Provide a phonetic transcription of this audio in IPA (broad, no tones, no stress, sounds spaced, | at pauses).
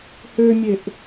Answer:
h ø mʲ e ʔ